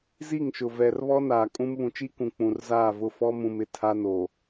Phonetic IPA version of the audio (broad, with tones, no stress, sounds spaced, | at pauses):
z i˦˨ ŋ ʃ ʊ˨ v ɛ˨ r β ɔ˦ n aː˨ kʼ ũ˦ m β ũ˨ t͡ʃ i˦ k ũ˨ k͡p ũ˨ r z aː˦˨ v ʊ˦˨ f ɔ˦ m ũ˨ m ɪ˨ tʰ a˦ n o˨